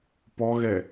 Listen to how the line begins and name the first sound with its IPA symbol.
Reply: p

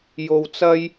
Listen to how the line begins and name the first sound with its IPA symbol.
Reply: j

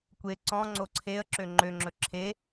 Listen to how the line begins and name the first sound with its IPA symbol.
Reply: kʷ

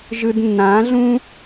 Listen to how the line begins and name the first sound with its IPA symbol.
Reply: ʒ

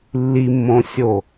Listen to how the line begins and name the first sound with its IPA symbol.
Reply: lː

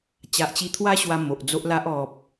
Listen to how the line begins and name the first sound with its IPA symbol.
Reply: t͡ɕ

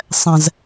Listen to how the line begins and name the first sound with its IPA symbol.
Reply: sˤ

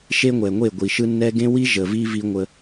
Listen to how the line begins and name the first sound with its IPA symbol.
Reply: ʃ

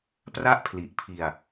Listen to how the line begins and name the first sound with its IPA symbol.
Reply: p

